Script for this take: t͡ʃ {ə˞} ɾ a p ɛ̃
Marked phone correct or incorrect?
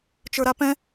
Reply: correct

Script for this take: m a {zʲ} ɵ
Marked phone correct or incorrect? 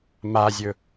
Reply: correct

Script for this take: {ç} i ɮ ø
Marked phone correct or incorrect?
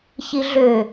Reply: correct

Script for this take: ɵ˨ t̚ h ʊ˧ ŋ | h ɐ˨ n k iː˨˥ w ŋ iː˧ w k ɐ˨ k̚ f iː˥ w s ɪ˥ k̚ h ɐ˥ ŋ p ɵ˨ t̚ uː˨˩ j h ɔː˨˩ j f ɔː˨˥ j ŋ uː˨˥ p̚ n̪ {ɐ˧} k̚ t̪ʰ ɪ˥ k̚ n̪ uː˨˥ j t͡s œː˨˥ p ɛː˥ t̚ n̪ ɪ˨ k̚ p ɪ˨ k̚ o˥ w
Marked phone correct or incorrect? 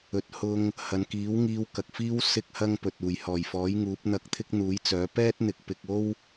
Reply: correct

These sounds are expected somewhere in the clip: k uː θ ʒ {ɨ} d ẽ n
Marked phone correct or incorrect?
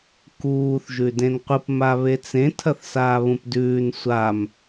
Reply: incorrect: ʉ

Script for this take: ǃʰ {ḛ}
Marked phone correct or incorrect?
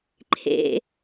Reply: correct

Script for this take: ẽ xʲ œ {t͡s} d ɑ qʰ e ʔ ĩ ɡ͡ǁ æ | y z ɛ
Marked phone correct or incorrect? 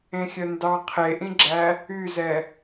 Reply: incorrect: n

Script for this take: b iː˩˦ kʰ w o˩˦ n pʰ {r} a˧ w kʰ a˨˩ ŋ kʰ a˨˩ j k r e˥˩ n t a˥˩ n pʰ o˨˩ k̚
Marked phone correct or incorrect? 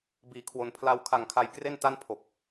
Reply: incorrect: l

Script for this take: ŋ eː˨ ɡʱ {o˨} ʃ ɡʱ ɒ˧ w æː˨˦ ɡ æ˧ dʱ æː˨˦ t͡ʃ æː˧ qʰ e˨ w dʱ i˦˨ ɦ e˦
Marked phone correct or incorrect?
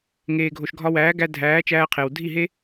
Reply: correct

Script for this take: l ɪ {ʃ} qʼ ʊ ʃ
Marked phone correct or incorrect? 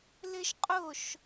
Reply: correct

